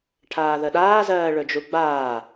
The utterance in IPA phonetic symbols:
ʈʰaːðəɗaːzɜː ɭɵd͡ʒuɡ͡baː

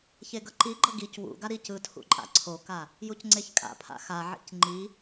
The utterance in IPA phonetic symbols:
çeɡʌǃiɡ͡ǃʌ ɡic wṵɡa ɾicɯtʰṵ ǃʼa̰ǀʰoka | jucŋ͡ǀeçkʼa̰pʰa̰ xaʕḭc ŋ͡ǃi

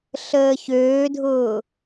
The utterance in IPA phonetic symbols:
ɬəːçøːdʱʊː

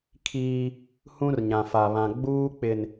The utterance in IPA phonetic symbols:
kʰiː˦ | hũ˦rɲã˨fa˨βã˨ ɡ͡buː˦k͡pɪ˨n

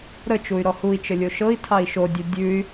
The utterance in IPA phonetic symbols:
ɾə t͡ʃuy̯ɾɔhui̯t͡ʃə lʲoʃɤi̯tʰɑi̯ ʃodʲʉ dʲʉy̯

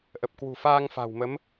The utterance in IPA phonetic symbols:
ʔə˨˩p̚kwṳ˨˩faː˧ŋ fa̤˨˩wmə˨˦m

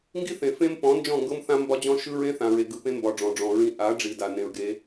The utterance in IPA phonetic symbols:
ŋɡi˦θẽ˨ fẽ˦mpɔ̃˨˦ nd͡ʒɔ̃˦˨ŋɡɤ˦mθã˦ mbɒ˦d͡ʑɔ̃˦ʃɯ˦ ɹẽ˦θã˨ɹe˨ ɡɯ˨pẽ˦mbɒ˨ ɖ͡ʐɔ̃˨ɖ͡ʐɔ̃˨ɹĩ˦ ʔa˨˦ ɖ͡ʐi˨ da˨nẽ˨ɹɡe˨˦

